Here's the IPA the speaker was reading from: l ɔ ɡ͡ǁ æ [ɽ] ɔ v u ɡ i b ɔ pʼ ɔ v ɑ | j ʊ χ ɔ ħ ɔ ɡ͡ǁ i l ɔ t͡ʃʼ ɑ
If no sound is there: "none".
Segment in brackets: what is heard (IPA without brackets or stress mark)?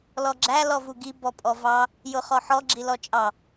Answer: l